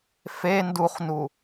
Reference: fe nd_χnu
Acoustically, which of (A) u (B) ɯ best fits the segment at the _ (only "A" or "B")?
A